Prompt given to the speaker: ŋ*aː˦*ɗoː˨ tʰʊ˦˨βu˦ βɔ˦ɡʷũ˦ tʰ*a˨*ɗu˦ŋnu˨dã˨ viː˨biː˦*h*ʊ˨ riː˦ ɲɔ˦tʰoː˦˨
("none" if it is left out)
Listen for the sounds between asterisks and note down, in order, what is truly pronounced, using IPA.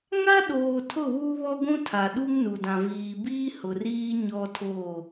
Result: a˦, a˨, h

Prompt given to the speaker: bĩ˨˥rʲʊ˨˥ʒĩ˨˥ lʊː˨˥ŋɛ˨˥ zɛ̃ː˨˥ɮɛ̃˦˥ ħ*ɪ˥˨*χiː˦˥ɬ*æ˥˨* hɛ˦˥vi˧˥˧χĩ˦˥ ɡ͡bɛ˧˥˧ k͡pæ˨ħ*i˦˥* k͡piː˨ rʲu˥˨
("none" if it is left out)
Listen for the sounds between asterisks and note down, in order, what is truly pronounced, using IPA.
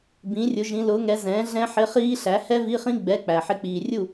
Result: ɪ˧˥˧, æ˨˥, ɪ˦˥

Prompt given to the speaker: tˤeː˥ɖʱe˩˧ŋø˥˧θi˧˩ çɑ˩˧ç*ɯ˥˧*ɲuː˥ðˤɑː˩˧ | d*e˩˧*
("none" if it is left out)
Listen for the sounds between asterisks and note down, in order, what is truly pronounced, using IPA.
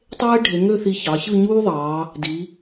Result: ɯ˥˧, i˩˧

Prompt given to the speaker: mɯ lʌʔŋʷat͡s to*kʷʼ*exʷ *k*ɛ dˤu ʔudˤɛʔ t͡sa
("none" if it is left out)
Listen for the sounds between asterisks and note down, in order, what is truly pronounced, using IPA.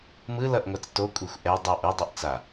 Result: kʷʼ, ʔ

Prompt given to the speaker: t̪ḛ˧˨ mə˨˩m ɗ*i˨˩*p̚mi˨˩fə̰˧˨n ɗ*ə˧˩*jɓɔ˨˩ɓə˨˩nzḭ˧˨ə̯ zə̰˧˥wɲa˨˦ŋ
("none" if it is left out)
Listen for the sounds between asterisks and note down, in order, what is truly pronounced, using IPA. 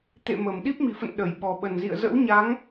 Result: i˦˥, ə˧˩

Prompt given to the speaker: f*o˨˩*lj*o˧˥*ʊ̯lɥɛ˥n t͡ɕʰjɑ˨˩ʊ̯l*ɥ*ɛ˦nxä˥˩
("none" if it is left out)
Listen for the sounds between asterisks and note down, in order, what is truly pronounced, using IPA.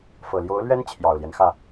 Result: ɤ˨˩, o˧˥, j

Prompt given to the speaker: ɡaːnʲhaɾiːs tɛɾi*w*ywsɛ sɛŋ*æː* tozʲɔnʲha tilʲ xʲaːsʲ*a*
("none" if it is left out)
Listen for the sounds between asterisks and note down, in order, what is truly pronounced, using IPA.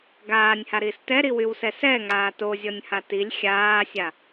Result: w, aː, a

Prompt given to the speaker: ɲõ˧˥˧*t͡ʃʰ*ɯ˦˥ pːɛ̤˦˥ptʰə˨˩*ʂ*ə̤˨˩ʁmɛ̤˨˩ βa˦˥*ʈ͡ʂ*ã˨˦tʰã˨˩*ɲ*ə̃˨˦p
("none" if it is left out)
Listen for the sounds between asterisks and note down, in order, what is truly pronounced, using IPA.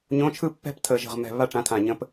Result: t͡ʃʰ, ʒ, ʈ͡ʂ, ɲ

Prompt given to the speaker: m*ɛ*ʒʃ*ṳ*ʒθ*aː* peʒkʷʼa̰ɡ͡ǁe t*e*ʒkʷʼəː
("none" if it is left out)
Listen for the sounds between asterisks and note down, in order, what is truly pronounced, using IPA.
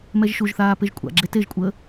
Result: ɛ, u, aː, e

